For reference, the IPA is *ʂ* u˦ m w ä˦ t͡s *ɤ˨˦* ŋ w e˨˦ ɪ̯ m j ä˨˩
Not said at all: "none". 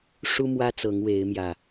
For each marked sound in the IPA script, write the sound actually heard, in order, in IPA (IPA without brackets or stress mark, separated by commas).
ʂ, ɤ˨˦